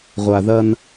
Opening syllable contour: low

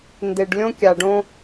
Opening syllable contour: low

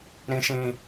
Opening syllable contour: low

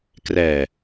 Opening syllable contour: low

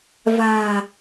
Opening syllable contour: low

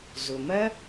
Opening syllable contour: low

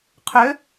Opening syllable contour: rising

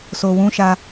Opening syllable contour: low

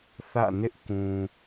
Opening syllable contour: falling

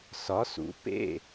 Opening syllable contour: rising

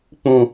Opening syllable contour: low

